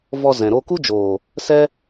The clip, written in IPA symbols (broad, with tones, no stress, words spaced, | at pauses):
vɔ˧ zɛ̃˨ ɾo˧ku˦d͡ʒoː˨ | sɛ˦